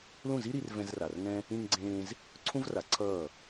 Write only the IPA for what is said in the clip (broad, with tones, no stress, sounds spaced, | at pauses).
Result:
l ũ˦˨ z i˦ ɾ i˧ r v ɛ̃˧ z r a˨ r ŋ ɛ̃˦ | ĩ˧ ŋ ɡ͡ǀ ẽː˧ z | ǀʰ ũ˦ v r a˨˦ ǀʰ ʌː˦˨